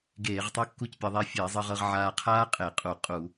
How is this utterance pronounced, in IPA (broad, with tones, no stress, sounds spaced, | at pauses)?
ɡ eː˧˩˧ ʁ tˤ ɤ˥ kː u˥ c pʲ ɤ˧ ðˤ eː˧ fʲ eː˧˩˧ zˤ ɤ˧ ʁ ɤ˧ ʁ ʕ aː˧ qʰ aː˥ qʼ e˧˩˧ qʼ u˧˩˧ qʼ u˧˩˧